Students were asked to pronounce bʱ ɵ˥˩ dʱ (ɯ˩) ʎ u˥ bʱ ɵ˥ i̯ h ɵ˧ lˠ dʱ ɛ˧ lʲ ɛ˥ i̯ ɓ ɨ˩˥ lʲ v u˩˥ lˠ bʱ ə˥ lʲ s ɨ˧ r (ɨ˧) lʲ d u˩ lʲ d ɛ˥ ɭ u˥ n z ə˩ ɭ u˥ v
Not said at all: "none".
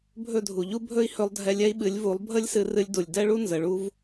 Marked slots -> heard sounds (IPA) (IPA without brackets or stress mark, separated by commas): u˩, ɨ˧